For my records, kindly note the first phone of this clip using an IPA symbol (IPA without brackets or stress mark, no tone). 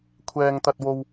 kʷʰ